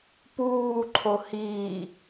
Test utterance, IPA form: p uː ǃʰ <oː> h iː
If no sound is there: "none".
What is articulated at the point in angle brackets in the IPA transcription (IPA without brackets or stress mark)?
o